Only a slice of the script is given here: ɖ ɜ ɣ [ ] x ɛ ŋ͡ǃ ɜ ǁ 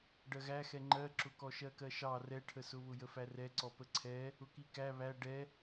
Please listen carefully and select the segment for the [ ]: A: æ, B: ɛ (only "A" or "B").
A